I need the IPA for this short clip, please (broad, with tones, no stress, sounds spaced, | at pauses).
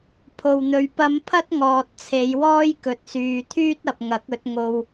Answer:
pʰ o˨ w n̪ ɵ˨ ɥ p ɐ˧ m pʰ ɐ˥ t̚ ŋ ɔː˨ t̚ t͡sʰ e˨˧ j w ɔː˥ j k ɵ˨ t̚ s yː˨ t̪ʰ yː˥ t̚ ɐ˨ p̚ ŋ ɐ˨˥ k̚ ɵ˨˥ t̚ ŋ o˧ w